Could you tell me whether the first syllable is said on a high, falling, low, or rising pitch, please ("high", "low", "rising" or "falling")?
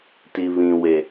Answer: low